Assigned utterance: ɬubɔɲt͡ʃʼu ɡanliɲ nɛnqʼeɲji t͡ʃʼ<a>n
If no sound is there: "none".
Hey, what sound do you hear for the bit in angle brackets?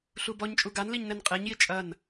ɐ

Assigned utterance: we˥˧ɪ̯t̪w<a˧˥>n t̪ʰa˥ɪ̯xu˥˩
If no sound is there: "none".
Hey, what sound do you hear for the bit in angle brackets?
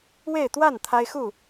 a˥˩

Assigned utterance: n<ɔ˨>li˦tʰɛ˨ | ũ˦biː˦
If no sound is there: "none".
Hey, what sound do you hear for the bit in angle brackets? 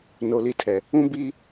o˨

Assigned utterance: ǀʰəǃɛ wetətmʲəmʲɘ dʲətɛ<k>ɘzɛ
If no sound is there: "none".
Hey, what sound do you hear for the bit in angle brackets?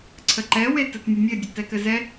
k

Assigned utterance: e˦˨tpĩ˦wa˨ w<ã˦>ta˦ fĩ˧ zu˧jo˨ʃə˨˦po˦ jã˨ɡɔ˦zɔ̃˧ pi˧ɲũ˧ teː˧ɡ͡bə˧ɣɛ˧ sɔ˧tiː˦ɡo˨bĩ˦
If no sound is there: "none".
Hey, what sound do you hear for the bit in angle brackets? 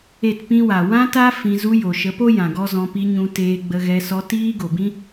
ã˦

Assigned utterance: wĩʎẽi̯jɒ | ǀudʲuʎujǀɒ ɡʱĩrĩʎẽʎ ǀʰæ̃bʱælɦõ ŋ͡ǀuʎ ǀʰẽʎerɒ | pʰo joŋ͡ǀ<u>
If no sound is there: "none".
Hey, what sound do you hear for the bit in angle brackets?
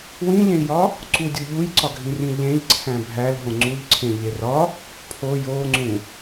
ũ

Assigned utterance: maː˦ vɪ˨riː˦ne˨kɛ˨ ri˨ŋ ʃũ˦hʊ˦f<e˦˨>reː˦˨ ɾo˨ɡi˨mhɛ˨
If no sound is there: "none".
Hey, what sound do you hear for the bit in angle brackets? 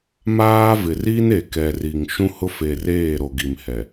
e˨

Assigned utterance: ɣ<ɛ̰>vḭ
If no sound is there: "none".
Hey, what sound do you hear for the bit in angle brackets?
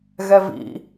ɛ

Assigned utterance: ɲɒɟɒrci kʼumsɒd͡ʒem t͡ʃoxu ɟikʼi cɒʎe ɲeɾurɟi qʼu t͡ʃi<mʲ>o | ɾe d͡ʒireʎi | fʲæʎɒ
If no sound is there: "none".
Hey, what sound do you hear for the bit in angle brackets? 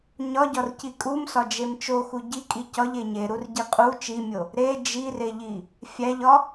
mʲ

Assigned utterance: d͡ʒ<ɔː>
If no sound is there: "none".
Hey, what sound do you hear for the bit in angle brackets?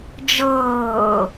ɤː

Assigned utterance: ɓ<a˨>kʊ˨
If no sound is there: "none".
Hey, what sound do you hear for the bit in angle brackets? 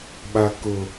a˨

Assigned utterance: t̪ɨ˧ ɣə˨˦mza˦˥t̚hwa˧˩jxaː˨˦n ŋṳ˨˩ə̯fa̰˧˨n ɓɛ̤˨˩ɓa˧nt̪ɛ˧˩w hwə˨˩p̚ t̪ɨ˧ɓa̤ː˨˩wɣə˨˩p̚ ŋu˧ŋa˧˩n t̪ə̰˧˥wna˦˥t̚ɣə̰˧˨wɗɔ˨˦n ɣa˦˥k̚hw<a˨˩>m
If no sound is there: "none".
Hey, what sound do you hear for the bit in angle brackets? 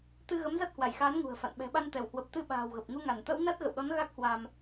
a˧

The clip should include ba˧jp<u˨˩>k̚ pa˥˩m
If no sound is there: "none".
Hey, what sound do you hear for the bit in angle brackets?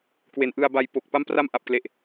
o˨˩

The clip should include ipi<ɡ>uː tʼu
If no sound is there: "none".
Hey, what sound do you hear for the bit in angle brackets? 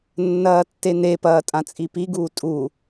ɡ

